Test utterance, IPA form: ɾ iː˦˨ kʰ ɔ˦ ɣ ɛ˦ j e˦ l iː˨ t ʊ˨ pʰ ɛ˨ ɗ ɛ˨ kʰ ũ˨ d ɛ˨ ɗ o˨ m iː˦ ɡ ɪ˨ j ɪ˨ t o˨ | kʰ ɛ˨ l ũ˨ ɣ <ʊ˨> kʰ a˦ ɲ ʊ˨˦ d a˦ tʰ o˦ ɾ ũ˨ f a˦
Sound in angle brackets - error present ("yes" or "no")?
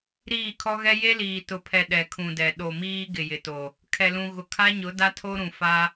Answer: no